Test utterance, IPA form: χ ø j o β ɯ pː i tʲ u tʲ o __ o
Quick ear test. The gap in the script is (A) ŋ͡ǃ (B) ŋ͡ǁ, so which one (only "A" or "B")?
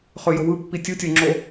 B